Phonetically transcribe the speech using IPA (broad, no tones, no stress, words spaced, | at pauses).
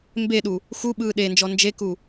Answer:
mbeɗu | xuɓɯː ɗend͡ʒɔ nd͡ʒeku